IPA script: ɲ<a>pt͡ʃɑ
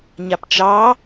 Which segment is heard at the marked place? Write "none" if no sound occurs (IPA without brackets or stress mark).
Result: a